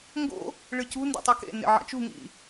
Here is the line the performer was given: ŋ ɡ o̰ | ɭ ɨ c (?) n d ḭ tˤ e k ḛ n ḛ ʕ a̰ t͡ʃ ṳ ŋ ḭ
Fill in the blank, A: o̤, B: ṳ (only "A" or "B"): B